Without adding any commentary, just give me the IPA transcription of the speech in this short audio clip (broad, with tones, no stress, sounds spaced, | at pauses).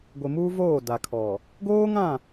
ɡʷ ɪ˨ m uː˦ v oː˦˨ d a˨ kʰ ɔ˨ | ɡ oː˦ ŋ ã˦˨